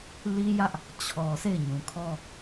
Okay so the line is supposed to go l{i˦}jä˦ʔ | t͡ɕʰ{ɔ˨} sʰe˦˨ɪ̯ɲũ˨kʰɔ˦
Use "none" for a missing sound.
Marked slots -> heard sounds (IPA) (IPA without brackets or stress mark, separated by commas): i˦, ɔ˨